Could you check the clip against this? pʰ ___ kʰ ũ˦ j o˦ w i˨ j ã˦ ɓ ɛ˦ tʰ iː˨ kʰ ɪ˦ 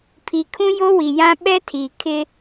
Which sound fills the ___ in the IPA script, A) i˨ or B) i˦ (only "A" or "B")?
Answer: A